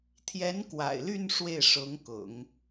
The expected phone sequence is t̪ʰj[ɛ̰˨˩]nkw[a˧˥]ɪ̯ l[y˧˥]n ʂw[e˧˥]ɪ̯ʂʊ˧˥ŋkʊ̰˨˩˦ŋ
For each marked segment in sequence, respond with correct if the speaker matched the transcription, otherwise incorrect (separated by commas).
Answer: incorrect, incorrect, incorrect, incorrect